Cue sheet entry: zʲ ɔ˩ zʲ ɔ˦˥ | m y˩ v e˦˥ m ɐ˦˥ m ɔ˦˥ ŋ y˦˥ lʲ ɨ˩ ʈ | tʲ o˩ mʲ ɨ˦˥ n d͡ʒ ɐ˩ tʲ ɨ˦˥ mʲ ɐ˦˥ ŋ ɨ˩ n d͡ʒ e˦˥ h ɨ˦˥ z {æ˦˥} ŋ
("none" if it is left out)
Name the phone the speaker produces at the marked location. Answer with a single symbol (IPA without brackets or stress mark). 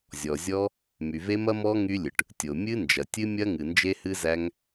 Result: æ˦˥